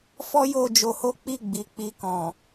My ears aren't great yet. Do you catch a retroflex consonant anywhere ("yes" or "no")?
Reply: no